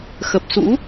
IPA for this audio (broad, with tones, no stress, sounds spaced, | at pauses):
x ə˨˩ p̚ s ṵ˧˥